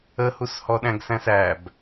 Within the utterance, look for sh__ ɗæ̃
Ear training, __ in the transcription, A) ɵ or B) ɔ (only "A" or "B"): B